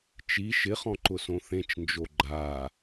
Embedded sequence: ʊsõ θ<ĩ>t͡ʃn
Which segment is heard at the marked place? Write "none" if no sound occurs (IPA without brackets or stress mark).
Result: ẽ